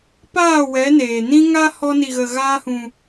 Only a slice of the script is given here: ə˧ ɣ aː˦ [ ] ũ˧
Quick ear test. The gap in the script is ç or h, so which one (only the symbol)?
h